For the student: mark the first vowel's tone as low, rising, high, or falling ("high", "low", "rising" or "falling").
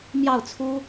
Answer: falling